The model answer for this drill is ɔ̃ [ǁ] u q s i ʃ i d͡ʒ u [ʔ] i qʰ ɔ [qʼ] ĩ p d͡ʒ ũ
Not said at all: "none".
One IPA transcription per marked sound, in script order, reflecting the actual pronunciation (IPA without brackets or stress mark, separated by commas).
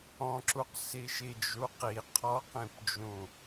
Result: ǁ, q, q